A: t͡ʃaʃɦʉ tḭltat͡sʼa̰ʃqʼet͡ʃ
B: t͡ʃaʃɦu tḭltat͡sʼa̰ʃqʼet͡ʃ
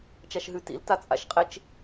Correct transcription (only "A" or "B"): A